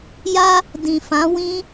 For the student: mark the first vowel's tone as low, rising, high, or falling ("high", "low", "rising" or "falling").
high